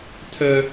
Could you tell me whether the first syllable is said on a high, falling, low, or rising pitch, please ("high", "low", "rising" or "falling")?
high